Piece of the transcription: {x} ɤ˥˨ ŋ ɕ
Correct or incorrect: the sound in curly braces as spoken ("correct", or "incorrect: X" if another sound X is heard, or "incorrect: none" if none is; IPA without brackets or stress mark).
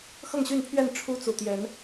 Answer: correct